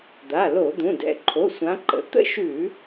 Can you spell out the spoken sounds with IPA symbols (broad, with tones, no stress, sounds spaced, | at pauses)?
d̪ a˩˧˩ l o˧˩˧ d̪ ũ˩˧˩ d ɛ̰˩˧˩ ǃʰ o˩˧˩ sʷ ã˨˦ ǃ ə̰˩˧˩ t̪ ə̰˥˧ ʃ ʉ˧˩˧